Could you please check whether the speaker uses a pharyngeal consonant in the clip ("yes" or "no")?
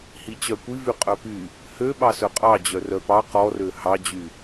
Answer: no